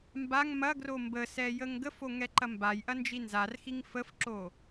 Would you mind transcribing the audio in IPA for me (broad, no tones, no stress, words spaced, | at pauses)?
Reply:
mbaŋ mɐɡro mbəsɛ jəŋɡəfo ŋɛǃɐmbajʔɐ nd͡ʒinzarxiŋ fəfǁo